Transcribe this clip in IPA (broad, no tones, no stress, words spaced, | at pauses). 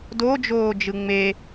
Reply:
dod͡ʒoː d͡ʒɯŋ͡me